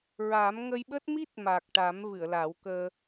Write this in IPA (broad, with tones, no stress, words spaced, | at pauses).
ɹa˨˩˦m ŋə˧jɓəː˦˥t̚mi˦˥t̚ ma˨˩k̚ ʈa˨˩˦m vɨ˨˩˨ə̯la˨˩˦wkəː˧